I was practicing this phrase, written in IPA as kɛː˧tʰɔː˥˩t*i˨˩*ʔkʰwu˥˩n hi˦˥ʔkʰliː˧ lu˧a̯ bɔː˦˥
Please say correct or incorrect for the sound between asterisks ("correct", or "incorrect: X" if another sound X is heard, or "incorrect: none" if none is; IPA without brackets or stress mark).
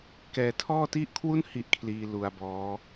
incorrect: i˥˩